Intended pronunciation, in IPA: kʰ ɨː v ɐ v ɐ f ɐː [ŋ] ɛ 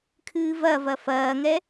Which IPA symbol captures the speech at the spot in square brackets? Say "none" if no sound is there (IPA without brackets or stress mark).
ŋ